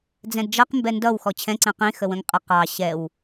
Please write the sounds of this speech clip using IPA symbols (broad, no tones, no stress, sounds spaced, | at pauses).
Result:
d͡z ɛ̃ d d͡ʒ ʌ q m b ɛ n d ʌ w x ɔ t͡ɕʰ ɛ̃ ǀ ɛ̃ q ĩ x ə w ə̃ ŋ qʼ ə q ɑ ɕ ɛ w